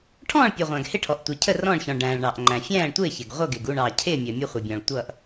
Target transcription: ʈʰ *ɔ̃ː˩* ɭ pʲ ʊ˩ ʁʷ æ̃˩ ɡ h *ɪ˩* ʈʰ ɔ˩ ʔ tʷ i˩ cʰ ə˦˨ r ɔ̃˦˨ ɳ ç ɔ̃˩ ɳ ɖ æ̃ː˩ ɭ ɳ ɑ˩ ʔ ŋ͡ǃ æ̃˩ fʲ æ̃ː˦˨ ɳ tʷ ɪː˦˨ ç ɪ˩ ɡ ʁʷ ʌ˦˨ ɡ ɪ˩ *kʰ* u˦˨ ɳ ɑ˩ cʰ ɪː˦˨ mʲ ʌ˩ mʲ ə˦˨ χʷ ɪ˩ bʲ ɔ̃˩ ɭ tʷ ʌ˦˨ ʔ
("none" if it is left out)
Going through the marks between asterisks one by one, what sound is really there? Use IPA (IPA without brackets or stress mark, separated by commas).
ɔ̃ː˦˨, ɪ˦˨, ɡ